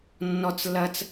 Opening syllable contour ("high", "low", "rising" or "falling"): high